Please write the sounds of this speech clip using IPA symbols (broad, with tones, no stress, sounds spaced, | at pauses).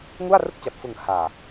ŋ u˥˩ a̯ r ɯ˥˩ k̚ t͡ɕ a˨˩ p̚ f ɯ˨˩ ŋ h aː˨˩